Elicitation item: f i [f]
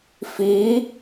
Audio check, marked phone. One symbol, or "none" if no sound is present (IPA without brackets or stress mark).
none